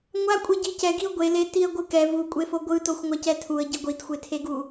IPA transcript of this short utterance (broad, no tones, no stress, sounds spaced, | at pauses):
ŋʷ a kʷʼ e ɟ i c ɛ ɡ i ʊ̯ ɡʷ e l e t i ə̯ ɡʷ ɯ k ɛ v u kʷʼ e f o ɡʷ ɯ t o xʷ ŋʷ a c ɛ tʰ u ə̯ ɟ i ɡʷ i t xʷ e tʰ e ɡ u